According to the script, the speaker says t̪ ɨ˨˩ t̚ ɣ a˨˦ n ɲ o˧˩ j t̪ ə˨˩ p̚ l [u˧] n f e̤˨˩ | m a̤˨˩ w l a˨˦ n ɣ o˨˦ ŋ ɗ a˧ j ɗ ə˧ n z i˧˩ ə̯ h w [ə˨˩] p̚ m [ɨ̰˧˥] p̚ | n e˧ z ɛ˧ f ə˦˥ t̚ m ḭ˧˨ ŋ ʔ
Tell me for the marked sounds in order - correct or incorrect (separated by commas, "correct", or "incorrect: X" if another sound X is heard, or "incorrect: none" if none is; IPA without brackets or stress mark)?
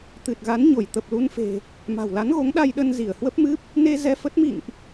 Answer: correct, incorrect: ə˦˥, incorrect: ɨ˦˥